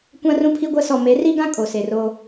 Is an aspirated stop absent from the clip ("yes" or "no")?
no